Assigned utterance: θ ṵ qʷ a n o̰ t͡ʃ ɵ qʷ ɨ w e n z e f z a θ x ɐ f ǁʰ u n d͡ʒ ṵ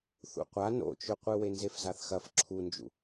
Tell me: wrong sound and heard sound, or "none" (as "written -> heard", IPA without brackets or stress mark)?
none